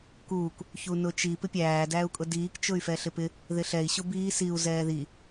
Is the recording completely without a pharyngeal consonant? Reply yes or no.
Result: yes